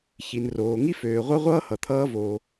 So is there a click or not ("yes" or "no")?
no